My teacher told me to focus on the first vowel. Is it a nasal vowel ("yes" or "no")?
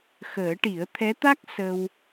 no